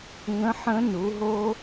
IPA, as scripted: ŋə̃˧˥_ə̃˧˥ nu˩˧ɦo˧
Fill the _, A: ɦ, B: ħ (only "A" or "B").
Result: B